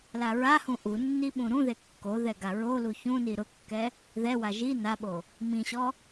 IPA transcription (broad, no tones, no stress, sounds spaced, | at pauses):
l a ɹ a h ũ ʔ u nː i ɓ ũ ɾ ũ ð e kː o ð ɛ ɡ a ɹ o l u ç ũ n i ɾ ʊ kː ɛ | ð ɛ w a ʒ i n a ɓ o | m ĩ ɕ ɔ